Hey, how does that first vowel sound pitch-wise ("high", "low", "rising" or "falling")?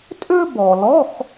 high